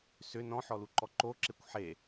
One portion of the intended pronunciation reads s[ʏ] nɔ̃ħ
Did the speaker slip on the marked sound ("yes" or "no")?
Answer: no